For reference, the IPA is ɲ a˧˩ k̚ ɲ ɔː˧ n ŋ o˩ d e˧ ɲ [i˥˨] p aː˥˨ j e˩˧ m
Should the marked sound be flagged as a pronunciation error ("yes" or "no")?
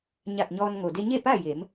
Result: yes